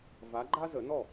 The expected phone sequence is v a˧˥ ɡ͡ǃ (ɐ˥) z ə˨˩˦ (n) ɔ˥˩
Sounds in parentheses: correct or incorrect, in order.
incorrect, correct

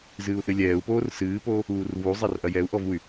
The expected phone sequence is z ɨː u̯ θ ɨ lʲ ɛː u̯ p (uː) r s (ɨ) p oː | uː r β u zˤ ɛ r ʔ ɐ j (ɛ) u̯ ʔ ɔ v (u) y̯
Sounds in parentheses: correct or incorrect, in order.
incorrect, incorrect, correct, correct

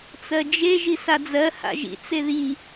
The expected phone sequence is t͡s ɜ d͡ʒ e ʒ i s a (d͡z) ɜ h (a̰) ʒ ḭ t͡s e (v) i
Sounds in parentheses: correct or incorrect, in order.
correct, correct, incorrect

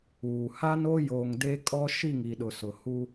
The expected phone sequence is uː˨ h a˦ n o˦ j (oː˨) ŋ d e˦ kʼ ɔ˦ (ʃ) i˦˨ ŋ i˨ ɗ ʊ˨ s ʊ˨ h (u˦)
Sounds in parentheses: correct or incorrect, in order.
correct, correct, correct

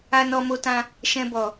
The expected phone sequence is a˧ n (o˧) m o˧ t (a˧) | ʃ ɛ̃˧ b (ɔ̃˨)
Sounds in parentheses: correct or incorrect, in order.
incorrect, incorrect, incorrect

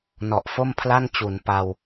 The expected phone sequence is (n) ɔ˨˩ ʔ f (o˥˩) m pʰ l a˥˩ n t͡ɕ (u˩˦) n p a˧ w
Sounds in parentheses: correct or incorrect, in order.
correct, correct, correct

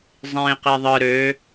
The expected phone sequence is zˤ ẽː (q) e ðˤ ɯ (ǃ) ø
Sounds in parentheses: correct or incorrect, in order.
correct, incorrect

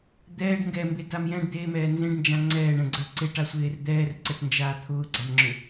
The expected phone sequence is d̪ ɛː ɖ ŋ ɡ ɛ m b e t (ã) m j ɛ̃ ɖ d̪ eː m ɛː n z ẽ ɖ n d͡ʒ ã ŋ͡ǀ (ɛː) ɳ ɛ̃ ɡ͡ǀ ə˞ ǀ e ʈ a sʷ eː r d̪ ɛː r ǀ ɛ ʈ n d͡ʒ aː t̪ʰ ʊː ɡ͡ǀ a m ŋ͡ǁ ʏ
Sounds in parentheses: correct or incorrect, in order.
incorrect, correct

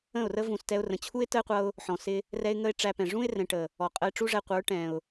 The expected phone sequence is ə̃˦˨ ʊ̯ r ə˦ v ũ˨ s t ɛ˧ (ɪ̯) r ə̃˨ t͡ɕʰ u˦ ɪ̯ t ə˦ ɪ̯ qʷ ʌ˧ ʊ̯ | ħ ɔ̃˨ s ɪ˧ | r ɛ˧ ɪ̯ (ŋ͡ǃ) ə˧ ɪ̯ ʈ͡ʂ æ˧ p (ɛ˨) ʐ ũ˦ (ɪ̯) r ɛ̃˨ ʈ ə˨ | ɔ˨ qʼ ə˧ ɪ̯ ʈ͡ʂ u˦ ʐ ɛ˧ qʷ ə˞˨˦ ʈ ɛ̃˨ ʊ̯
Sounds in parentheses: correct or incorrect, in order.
incorrect, incorrect, incorrect, correct

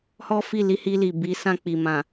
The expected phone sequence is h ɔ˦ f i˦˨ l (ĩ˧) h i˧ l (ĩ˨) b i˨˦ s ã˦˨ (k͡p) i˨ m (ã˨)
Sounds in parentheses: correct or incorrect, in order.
incorrect, incorrect, correct, correct

